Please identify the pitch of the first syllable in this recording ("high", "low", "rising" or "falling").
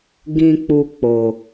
low